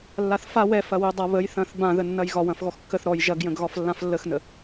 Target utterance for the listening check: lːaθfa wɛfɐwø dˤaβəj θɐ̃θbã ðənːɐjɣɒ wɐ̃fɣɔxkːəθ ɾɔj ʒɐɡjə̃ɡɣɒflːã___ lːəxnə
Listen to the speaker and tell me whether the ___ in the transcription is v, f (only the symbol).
f